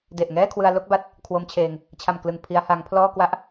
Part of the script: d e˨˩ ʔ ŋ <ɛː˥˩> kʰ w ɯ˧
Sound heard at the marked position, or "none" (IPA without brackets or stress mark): ɛː˥˩